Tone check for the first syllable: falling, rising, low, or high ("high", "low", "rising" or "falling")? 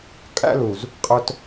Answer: high